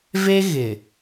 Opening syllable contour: high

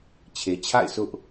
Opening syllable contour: low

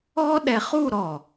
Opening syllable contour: high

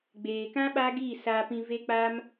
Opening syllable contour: low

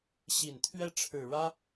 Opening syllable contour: low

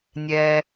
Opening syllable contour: low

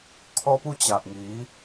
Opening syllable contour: high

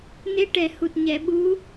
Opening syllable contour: rising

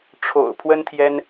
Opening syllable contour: low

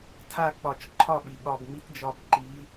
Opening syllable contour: falling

